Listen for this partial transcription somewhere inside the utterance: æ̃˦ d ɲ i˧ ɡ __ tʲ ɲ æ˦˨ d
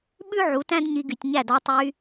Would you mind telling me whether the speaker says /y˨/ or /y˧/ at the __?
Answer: y˨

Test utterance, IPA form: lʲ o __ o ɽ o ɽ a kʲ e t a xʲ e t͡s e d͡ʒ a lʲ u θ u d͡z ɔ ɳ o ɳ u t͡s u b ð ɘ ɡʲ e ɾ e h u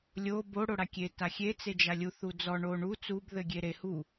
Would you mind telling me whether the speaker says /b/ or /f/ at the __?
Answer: b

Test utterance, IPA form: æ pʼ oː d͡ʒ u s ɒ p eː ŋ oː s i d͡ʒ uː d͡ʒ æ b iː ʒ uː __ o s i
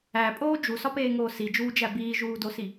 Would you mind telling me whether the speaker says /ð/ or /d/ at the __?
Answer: d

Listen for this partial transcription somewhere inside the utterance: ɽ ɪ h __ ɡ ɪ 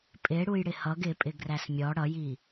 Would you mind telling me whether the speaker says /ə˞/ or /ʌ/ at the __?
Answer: ʌ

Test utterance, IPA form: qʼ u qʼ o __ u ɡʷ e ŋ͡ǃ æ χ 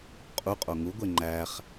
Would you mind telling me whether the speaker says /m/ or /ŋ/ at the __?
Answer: ŋ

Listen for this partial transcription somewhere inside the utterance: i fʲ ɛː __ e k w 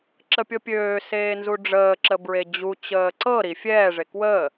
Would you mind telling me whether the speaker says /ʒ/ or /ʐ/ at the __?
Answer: ʐ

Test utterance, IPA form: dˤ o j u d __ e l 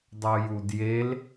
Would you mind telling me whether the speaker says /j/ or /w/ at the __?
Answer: j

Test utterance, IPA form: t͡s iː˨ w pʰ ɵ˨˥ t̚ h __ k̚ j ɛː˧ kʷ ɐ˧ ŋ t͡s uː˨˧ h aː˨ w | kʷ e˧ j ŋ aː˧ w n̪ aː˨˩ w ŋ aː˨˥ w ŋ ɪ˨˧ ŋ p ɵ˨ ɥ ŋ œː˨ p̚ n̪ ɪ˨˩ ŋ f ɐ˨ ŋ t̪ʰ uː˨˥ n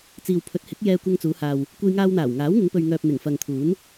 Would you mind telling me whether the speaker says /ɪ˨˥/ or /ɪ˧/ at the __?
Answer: ɪ˨˥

